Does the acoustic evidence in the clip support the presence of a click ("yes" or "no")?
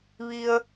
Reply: no